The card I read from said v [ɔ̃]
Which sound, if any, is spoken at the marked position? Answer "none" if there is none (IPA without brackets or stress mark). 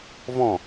ɔ̃